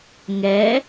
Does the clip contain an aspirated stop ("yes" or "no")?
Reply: no